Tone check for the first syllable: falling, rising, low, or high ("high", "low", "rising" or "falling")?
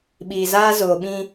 low